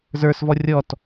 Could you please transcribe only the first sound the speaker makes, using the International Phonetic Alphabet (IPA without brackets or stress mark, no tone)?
z